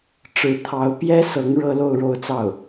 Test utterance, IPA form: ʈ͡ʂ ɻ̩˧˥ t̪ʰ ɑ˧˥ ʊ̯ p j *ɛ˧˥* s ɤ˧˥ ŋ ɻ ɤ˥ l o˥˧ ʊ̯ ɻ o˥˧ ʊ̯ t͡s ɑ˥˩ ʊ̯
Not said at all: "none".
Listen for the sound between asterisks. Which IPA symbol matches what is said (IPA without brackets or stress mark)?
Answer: ɛ˥